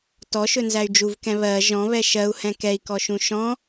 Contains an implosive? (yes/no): no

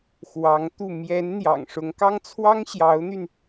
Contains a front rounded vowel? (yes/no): yes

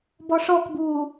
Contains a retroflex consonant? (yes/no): yes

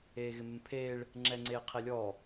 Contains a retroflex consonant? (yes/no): yes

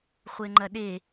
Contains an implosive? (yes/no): yes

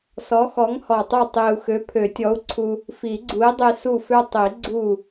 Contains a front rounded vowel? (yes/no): yes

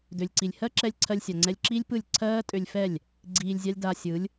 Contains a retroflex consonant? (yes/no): no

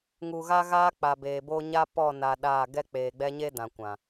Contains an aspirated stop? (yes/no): no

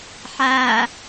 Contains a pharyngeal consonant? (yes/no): yes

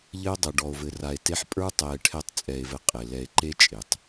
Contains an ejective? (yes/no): yes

